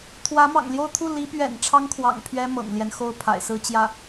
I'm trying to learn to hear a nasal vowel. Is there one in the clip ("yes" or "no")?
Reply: no